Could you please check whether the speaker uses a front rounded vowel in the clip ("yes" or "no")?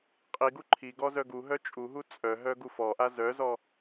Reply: yes